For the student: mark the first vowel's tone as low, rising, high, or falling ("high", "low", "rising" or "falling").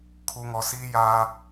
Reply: low